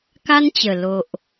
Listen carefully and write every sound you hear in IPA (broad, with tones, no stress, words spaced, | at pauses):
ka˦nt͡ɕə˨˩ lo˨ʔ